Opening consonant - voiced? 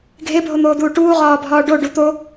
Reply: yes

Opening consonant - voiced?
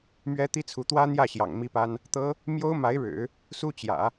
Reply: yes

